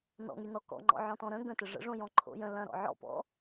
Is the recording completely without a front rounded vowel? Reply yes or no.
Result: no